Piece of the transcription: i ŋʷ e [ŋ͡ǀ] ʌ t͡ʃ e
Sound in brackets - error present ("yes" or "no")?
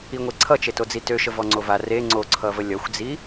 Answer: yes